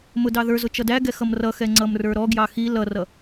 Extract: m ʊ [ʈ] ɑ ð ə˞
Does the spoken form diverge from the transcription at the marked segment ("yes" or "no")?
yes